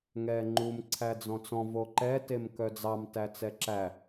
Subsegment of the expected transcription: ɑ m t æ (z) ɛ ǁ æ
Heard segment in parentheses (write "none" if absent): t͡s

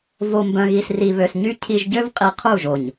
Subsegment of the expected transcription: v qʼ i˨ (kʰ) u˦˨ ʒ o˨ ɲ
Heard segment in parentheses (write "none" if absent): qʰ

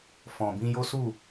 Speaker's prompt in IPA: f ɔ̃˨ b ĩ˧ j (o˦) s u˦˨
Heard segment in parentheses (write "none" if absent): o˦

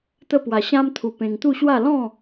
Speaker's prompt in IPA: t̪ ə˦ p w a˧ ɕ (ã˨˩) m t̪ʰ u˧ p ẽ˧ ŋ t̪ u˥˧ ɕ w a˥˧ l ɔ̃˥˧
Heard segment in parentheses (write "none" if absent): ã˦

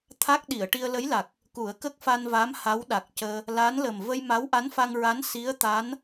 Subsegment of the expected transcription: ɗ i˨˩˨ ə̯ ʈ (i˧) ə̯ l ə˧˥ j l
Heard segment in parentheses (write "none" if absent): i˧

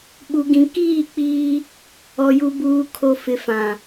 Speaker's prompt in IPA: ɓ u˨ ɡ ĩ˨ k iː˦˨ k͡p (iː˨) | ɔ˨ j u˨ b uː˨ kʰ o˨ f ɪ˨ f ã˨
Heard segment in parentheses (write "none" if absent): iː˦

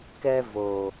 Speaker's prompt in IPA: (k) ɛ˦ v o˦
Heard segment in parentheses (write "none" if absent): k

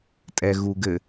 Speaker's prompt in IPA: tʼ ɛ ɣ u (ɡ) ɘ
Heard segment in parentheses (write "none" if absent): ɡ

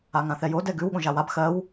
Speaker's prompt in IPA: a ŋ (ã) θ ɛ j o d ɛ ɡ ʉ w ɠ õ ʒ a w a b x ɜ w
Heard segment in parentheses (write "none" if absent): ã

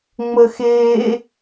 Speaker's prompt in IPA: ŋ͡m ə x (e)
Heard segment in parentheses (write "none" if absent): eː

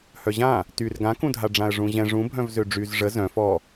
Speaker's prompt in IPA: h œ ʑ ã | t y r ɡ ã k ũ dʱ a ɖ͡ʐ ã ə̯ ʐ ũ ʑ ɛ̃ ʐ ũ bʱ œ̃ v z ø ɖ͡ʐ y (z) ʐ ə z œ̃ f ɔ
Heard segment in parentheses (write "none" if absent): z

